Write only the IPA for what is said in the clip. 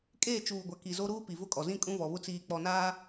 kʼeː˦˨t͡ʃuː˨ɡʷa˨ ki˨zo˦ɾuː˦ pi˨vʊ˦kʼɔ˨zĩ˦ kʼũ˦vɔ˨βʊ˦ t͡siː˨k͡pɔ˨naː˦

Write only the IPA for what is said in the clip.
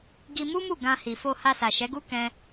ɡi˧mu˦mu˦˨ ɡã˧hi˨fo˧ ha˧sa˨ʃɛ˨˦ɡu˦ kɛ̃˦

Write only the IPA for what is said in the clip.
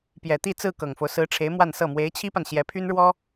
pjɛ˨˩t̪i˥˧ t͡sɹ̩˥˩kɤ˨˩ŋfo˦ʊ̯ sɹ̩˧˥ʈ͡ʂʰe˧˥ɪ̯ mwa˥˧nsɤ˥˩ mwe˧˥ɪ̯t͡ɕʰi˥pa˨n ɕjɛ˧˥pʰy˥nɻwɔ˥

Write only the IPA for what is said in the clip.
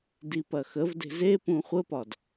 dipɐxəvde̤z e pũχʷəpɒd

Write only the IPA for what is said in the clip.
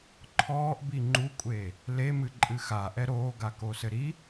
ǃʰɔːʔbi ŋ͡ǃukʷʼeː | lemɨǃʼɨ xaʔɛ ɾoːɡakosɘ ɾi

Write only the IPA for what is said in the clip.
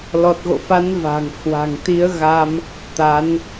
lɔ˨˩t̚ɣo̰˧˨fa˨˦n va̤˨˩ŋhwa̤˨˩ŋ t̪i˨˦ə̯ɣa˧m | t̪a˨˦n

